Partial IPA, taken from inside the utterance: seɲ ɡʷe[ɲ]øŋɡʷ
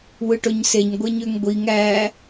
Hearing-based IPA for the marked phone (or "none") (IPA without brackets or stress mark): ɲ